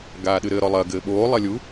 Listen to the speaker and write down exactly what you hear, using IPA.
ɡ aː ɗ ɨ ɾ ɘ ɾ ɔ lˠ ɐ ɡ ɘː ɓ oː lˠ ɐ lʲ u

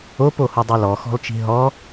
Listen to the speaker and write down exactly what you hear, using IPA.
o p o h u dˤ o l ɔ x ɔ̤ l t͡ʃ i̤ ɦ ɔ

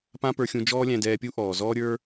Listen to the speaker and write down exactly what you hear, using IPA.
p ã˥ p ə˞˧ xʲ ũ˧ d͡ʒ ɔː˥ lʲ æ̃˧ d ɛː˧ pʲ u˥ ʔ ɔː˩ z ɔː˥ ɾʲ ə˞˥

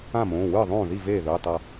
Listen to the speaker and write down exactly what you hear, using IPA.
ã˥˩ m õː˩˧˩ w ɯː˥˩ ðˤ õː˥˩ ð i˥˩ v eː˥˩ ð ɯ˩˧˩ tˤ ʌ˥˧

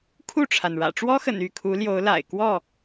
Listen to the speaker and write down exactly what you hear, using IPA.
kʰ u˥˨ ʈ͡ʂʰ a˩ n ɻ ä̰˨˩ ʈ͡ʂ w ɔ˦ x ə̰˨˩ n y˥˨ kʰ u˨˦ l j o˨˦ ʊ̯ l a̰˨˩ ɪ̯ k w ɔ˥˨

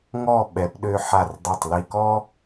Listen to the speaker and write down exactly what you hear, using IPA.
ŋ ɔ˥˧ ɓ ɛ˩˧ p ɗ ø˧ ħ a˧˩ r dˤ e˧˩ tˤ l i˧ k ɔ˥

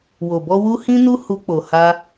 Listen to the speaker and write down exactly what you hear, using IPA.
w o˨ b ɔ˧ w u˧ h ĩ˦ n u˦ h u˧ k͡p o˨ h a˧

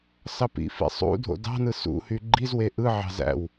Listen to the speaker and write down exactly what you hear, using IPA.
s ɑ p ḭ f ḭ sˤ ṵ dʱ o̰ d ɑ̤ n ɯ s ṵ h y ɡ͡ǃ i z w e ʔ ɯ ʕ ɑ̤ z æ̰ w

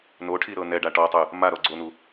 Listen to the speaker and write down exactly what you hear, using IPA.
n o ʈʰ i ɾ ɤ n ɛ ɖ a ʈ ɔ tˤ ɯ | m a ɾ ɔ ɡ͡ǀ o n u

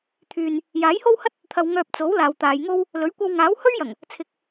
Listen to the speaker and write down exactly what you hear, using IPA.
t̪ʰ yː˨ n | j aː˨˥ j h o˥ w h ɐ˥ t̚ | t̪ʰ ɐ˨ w ŋ œː˧ p̚ t͡s o˨˥ w l aː˨ w t̪ aː˨˧ j ŋ o˥ w | l ɵ˨˥ ɥ kʷ ɐ˧ w ŋ aː˨˥ w h ɵ˥ ɥ j ɐ˨˩ ŋ | t͡sʰ ɪ˨ k̚

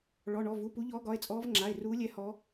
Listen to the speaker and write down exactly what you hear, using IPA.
ɭ ɔ˩˧˩ ɳ ɔ˩˧˩ v u˩˧˩ p u˨˦ ʎ ɔː˨˦ ɡ ɒ˩˧˩ e̯ t͡sʼ ɔː˨˦ v ŋ͡ǁ a˩˧˩ e̯ r uː˨˦ lʲ ɛ˨˦ h ɔ˨˦

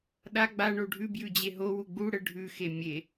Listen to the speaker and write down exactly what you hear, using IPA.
ɗ a ɡ͡b a ɳ o ɖʱ ʉ b j ʉ d͡ʑ e ɦ o w u ɡ͡b u ɽ ə ɖʱ ʉ x e mʲ e

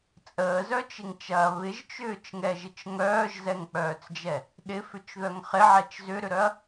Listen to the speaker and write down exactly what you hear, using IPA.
t͡sʼ əː z œ t͡ʃ ɪ ŋ t͡ʃ ɐː β ɪ ʒ t͡ʃ ʏː t͡ʃ ŋ ɛ ʒ ɪ t͡ʃ ŋ œː ʒ z ɛ ŋ k͡p œː t͡s d͡ʒ ɛ | ɗ ɪ f ʏ t͡ʃ ð œ ŋ χ ɪ ʕ ɛ t͡ʃ z ʏ ɾ ʏ ɾ œ ɐ̯

